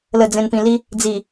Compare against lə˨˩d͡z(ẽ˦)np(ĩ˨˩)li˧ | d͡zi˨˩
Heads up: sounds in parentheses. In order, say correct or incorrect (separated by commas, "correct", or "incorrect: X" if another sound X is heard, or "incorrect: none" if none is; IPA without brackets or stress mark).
incorrect: ẽ˨˩, correct